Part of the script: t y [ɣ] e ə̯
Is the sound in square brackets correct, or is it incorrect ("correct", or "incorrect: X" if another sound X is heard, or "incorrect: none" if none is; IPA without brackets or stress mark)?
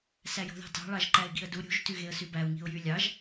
correct